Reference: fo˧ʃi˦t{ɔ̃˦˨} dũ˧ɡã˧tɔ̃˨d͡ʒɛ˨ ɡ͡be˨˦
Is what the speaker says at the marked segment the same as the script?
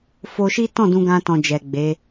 yes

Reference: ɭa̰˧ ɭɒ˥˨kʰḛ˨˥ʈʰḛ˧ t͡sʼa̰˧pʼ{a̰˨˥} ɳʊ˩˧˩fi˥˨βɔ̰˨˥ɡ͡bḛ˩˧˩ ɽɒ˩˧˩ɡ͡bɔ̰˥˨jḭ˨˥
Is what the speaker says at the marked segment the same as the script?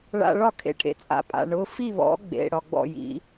no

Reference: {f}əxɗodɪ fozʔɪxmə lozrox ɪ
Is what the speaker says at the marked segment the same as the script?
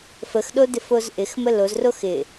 yes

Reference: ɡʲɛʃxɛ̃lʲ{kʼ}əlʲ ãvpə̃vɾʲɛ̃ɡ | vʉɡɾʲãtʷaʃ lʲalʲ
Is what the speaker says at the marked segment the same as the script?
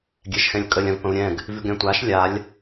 yes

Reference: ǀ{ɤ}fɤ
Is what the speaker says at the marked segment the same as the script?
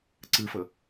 no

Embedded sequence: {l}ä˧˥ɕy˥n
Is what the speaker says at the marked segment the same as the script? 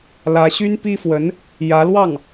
yes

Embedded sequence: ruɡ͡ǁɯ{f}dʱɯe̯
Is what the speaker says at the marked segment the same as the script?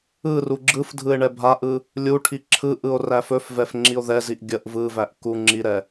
yes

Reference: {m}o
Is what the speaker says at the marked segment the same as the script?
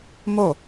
yes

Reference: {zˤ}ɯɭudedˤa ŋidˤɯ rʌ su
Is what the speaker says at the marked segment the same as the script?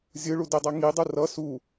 no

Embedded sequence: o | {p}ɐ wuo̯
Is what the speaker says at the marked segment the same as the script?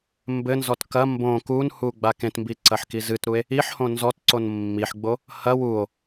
no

